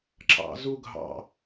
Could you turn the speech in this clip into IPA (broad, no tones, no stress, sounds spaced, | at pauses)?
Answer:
ǁ ɑ̰ z u ɡʱ ɑ̰